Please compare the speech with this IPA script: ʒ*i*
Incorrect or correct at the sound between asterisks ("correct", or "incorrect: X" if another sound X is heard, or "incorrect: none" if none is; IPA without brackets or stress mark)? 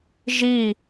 correct